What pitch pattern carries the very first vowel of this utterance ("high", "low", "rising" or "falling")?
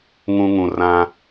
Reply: high